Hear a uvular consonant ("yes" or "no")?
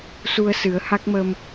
no